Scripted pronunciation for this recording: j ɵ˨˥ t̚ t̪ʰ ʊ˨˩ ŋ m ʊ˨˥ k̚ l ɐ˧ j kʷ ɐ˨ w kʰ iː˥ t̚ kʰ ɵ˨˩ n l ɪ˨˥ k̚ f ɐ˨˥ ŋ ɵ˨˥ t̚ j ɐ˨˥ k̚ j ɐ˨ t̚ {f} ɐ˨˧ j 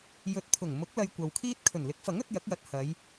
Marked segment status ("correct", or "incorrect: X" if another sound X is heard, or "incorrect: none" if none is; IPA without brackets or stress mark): incorrect: h